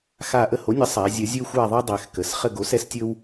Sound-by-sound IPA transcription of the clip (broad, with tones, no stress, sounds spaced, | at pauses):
x a˦˨ ʔ ə˦˨ h o˩˥ nʲ ə˩˥ sˤ a˩˧ zʲ ə˩˧ zʲ ɵ˦ xʷ a˦˨ ðˤ ɛ˦ dˤ ɛ˩˧ x k ə˩˧ s χ ə˦˨ ɡ o˩˥ s ɛ˦ s tʲ ɵ˦ w